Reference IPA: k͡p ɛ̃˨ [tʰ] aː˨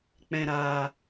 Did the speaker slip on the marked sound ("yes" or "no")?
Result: yes